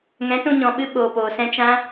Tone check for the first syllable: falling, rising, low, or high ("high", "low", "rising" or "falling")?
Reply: rising